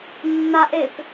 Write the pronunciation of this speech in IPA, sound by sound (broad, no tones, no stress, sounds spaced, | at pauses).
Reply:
nː a ʔ e p